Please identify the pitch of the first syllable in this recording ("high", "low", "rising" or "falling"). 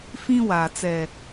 high